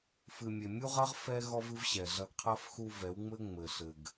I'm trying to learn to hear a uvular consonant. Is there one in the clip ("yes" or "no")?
yes